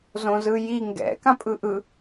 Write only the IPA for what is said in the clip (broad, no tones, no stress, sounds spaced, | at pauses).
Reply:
z õ z ɯ j i ŋ ɡ ɛ̰ k ã pʼ ɯ ʔ ɯ